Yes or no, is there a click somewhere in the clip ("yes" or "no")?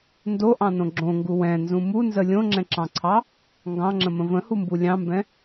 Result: yes